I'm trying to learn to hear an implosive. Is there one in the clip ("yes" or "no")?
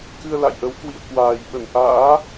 yes